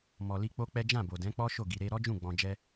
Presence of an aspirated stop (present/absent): absent